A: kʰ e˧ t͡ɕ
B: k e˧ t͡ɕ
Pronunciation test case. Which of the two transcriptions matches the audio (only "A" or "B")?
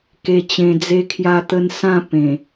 B